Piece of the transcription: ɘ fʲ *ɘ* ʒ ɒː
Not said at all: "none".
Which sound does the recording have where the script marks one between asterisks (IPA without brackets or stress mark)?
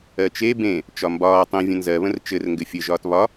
ɘ